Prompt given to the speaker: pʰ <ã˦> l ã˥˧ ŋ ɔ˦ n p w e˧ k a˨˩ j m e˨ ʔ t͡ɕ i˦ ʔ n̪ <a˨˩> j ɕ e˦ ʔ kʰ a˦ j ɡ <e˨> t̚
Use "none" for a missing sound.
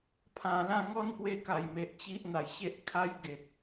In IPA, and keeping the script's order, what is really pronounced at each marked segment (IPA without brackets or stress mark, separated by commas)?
ã˨˩, a˨˩, e˨